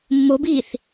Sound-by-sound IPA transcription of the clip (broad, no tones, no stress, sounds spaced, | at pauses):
mː o b iː θ